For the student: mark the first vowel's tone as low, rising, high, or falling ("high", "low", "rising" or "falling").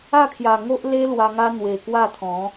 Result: falling